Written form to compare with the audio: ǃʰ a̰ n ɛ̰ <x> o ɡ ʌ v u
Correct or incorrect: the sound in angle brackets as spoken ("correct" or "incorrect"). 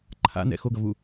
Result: correct